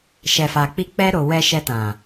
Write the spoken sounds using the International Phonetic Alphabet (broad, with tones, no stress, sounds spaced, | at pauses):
ʃ ɛ˨ f a˨ k͡p i˧ k͡p ɛ˧ ɾ o˨ w ɛ˧ ʃ ɛ˧ t ã˨